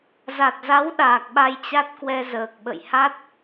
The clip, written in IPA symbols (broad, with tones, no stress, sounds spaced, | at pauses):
z a˨˩ t̚ z a˨˦ w ɗ aː˨˩ k̚ ɓ a˧ j t͡ɕ a˦˥ t̚ k w ɛ˧ z əː˨˩ k̚ ɓ ə̰˧˨ j h a˦˥ t̚